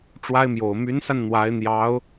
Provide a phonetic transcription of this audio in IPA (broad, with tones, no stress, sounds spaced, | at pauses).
ʈ͡ʂ w a˥ ɪ̯ m j o˨˩ ʊ̯ m y˧˥ n s a˧ n n̪ w a˧˥ ɪ̯ n̪ j ɑ˧˥ ʊ̯